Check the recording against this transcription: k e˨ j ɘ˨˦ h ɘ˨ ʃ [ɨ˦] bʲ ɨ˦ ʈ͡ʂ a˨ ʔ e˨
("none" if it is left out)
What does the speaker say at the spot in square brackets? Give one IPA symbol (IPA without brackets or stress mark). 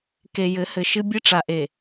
ɨ˦